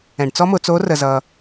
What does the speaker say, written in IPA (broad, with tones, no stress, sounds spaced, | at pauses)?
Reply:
ɛ̃˩ ɖ t͡s ɔ˥ m ʊ˩˧ t͡s o˧˥ r ə˩ z ʌ˩